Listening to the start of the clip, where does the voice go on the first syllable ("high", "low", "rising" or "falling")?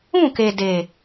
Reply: falling